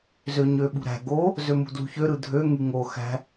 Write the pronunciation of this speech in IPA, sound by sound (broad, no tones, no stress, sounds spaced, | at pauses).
z ø ɲ ø ɓ ṳ ɾ æ̤ ɡ o | z ø m ṳ d l ṳ ç ø ɾ ɯ dʱ ø ŋ y ŋ o x æ̤